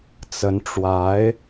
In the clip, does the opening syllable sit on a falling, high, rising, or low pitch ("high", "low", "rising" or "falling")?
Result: rising